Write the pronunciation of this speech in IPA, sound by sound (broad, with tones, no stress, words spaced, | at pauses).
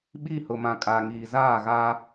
ɓi˦˨ hʊ˨mã˨kʼaː˨ ŋiː˨zaː˦˨ɣa˦